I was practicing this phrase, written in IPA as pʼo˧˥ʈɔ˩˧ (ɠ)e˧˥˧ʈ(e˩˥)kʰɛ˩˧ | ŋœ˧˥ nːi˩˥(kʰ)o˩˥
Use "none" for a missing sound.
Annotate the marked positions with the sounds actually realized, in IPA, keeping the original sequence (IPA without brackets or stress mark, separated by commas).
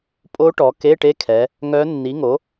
k, e˧˥˧, ŋ